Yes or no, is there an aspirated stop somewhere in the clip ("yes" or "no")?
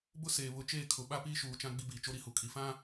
yes